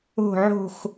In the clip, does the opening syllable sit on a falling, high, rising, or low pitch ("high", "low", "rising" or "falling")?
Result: falling